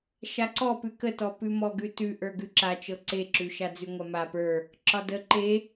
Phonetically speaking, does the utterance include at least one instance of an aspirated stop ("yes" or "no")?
no